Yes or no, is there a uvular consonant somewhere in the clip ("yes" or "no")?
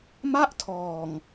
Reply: no